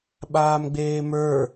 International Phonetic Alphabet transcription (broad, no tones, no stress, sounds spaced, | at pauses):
ɓ aː m ɡ͡b eː m ə˞